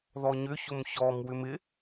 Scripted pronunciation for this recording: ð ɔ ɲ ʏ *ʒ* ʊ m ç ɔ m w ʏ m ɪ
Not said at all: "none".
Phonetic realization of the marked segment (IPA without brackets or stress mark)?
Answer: ç